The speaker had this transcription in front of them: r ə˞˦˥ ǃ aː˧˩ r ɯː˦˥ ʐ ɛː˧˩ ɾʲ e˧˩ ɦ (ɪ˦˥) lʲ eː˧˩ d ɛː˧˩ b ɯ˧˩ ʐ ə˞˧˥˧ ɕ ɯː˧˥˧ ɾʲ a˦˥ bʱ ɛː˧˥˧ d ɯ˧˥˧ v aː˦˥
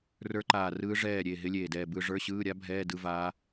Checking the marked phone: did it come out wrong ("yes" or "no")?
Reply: no